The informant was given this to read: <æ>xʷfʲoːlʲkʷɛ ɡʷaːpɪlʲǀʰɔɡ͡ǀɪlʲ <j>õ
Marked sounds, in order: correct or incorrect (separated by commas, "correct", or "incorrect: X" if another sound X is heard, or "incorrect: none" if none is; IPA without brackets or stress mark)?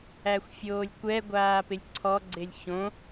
correct, incorrect: ç